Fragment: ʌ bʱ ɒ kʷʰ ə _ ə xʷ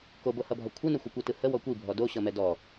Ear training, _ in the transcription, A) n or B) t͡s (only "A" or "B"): A